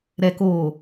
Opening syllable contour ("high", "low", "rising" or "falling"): low